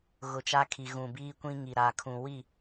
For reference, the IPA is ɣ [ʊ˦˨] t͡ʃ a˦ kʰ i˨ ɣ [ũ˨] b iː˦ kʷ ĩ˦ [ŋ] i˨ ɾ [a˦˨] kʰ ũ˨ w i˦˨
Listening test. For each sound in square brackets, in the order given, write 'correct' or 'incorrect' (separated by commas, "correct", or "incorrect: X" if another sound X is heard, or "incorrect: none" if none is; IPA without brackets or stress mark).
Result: incorrect: ʊ˨, correct, correct, incorrect: a˨